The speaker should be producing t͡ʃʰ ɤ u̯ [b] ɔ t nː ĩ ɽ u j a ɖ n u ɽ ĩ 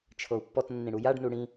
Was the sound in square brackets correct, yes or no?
no